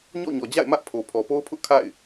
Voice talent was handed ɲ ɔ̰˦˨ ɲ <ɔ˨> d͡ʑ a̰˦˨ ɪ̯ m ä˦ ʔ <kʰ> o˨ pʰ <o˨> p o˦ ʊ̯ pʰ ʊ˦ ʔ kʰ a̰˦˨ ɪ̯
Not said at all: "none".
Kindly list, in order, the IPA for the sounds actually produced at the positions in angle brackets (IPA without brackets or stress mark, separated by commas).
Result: ɔ˨, pʰ, ɔ˨